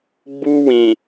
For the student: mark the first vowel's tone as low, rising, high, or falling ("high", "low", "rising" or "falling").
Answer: high